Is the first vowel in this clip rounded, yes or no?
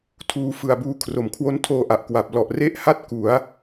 yes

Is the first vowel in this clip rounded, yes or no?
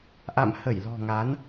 no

